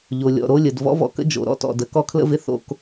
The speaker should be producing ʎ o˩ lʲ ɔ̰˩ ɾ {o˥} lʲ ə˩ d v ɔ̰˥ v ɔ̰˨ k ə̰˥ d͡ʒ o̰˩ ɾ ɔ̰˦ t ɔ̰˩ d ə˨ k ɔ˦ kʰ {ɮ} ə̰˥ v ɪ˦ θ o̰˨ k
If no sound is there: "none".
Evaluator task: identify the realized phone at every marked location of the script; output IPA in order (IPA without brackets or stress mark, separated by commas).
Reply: o˦, l